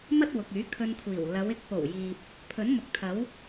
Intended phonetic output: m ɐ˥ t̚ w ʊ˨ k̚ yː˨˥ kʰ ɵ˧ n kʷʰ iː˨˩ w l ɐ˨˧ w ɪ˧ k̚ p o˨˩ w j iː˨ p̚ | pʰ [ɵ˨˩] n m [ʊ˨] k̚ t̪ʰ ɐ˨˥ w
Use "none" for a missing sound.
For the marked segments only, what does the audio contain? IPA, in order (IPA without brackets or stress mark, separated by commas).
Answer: ɵ˨˥, ʊ˨